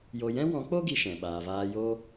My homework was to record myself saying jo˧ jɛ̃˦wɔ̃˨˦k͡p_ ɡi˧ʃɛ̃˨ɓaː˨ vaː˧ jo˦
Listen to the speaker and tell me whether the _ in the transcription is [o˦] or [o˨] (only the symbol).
o˦